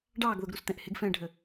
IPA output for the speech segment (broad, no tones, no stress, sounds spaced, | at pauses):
ɖ ɑː ɡ ð ʊ ɡ ɾ u s t̪ ɛ̃ ʔ h ɪ ɡ f ɛ̃ː ɖʱ ə